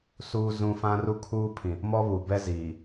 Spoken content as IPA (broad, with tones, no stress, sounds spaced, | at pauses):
s uː˦ z ũ˦ f ã˦ r u˦ kʰ uː˦ pʰ ĩ˨ | m ɔ˦ β u˨ b ɛ˦ z iː˨